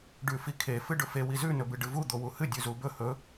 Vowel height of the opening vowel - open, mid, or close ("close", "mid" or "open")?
close